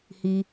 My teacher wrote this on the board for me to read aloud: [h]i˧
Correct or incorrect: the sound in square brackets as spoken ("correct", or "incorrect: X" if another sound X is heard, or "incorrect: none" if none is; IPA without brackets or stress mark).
correct